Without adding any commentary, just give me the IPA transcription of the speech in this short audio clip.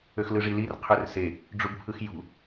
ø x l ɯ ʐ i l i r qʰ ø r s e | ɖ͡ʐ u b pʰ ɯ x j ṳ

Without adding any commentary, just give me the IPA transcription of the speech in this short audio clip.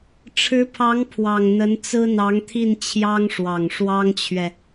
ʈ͡ʂʰ ɻ̩˧˥ pʰ ɑ˧˥ ŋ pʰ w ɑ˨˩ ŋ n̪ ə˧˥ n t͡s ɹ̩˥ n̪ ɑ˧˥ ŋ t̪ʰ i˥˩ n t͡ɕʰ j ɑ˥ ŋ ʂ w ɑ˨˩ ŋ ʂ w ɑ˥ ŋ t͡ɕʰ ɥ ɛ˨

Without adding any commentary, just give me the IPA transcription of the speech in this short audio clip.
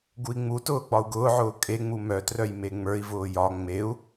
ɡ u i̯ ŋ͡m u t ʊː ɡ͡b ɒ u̯ ɡ ʊː ʕ ʊː kʼ e ŋ͡m u m œ t r œ j m e ŋ͡m ə˞ i̯ v ʊː j ɒ ŋ͡m e u̯

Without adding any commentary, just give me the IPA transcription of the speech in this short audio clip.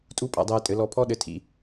tʼ u˦ pʼ a̰˧ dˤ ɛː˧ tʼ ɘ˨˦ l ɔ˧ pʰ ɔ˦ ɗ ɘ˧ tʰ ḭ˧

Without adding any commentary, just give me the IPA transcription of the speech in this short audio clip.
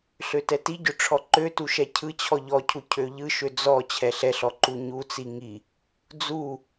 ɬ ø t ɛ t i ɟ ø ʈ͡ʂʰ ɔ ǃ ø t u ʃ ɛ cʰ ɯ t͡ɕʰ ɔ ʎ ɔ cʰ u cʰ ø ʎ ɯ ʃ ø d͡z ɔ t͡ɕʰ ɛ ɬ ɛ ɬ ɔ ǃ u ɲ u t͡s i ŋ i | d͡z u

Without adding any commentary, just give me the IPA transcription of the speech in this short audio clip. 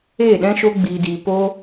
eː˦˨ ɗ ɛ̃˦ ʃ o˦ ɡ͡b iː˧ d iː˧ p o˦

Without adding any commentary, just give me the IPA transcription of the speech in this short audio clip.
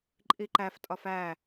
ǃʼ i ǃ æ f tʼ ɒ f æ

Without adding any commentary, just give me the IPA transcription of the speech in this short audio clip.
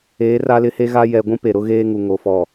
eː˨˦ r a˦ l ɪ˦ h e˦ ɣ a˦ j ɛ˨ ɡʷ ũ˦ p e˨ ɾ ʊ˦ ɣ eː˦ ŋ u˨ ŋ o˨ f ɔ˨

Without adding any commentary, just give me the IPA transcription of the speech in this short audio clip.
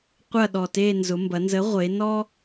qʷ ɐ˥˧ ɗ ɔ˨˩ t e˥˧ n z ʊ˩˧ m b ɐ˩˧ n z ə˨˥ ʁʷ e˩˧ n ɔ˥

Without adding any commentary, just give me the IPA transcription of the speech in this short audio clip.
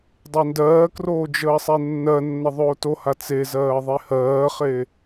dˤ e n d ɜː k r oː d͡ʒ əː sˤ e nː ɜ nː ə ðˤ oː t o h a t͡s e z ɜː ðˤ e h ɜː χ e

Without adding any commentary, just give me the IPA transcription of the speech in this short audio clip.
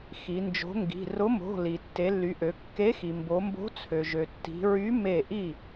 x i˩˧ n d͡ʒ o̤˨˥ ŋ ɡ i̤˩˧˩ r ʊ˨˥ m o̤˩˧˩ l i˩ tː e˩˧ lː y˩˧ ʔ ø˩˧ kː e˨˥ x i˩ m b o˩˧ m b o̤˨˥ t͡sʰ ø˩ ʒ ø˩ tː i̤˩˧ ɹ y˨˥ m e˥˩ ʔ i˥˩

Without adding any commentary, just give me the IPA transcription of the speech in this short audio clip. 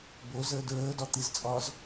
b o z əː d ɹ əː d ɒ t̪ i z t͡sʼ ɒː z

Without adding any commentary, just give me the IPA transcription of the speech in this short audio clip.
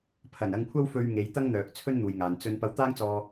pʰ ɐ˨˩ n ɐ˧ ŋ kʷʰ ɐ˥ w f ɵ˧ ɥ ŋ e˨˧ j t̪ ɐ˥ ŋ n̪ œː˨ k̚ t͡sʰ ɵ˥ n n̪ uː˨ j ŋ aː˨ n t͡s ɵ˧ n p ɐ˧ w t̪ aː˥ ŋ t͡s ɔː˧

